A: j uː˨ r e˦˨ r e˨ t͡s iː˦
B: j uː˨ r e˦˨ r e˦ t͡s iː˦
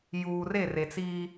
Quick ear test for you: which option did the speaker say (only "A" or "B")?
A